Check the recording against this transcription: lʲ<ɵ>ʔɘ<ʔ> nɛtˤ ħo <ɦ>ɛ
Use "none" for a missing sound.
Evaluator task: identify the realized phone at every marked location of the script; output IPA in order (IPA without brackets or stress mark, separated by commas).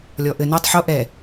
ɔ, none, ʔ